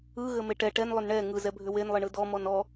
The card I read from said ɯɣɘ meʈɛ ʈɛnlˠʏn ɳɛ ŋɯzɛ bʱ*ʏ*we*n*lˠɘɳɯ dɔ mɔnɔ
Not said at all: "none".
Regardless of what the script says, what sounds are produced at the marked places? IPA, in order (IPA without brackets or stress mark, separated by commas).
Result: ʏ, n